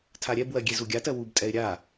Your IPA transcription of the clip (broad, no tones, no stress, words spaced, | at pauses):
tʰaɾʲɛbwɜ ɡʲezuɡʲatɜ wubtʼɛɪ̯ ɾʲa